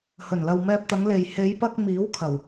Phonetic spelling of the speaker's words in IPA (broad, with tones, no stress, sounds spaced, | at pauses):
h ɵ˨˩ n l ɐ˨ w m ɛː˧ p̚ t̪ ɐ˨˧ ŋ l e˨ j h e˨˧ j p ɐ˧ k̚ m iː˨˥ w kʰ ɐ˨˩ w